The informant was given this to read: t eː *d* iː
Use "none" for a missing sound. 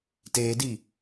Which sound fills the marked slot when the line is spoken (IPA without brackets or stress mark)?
d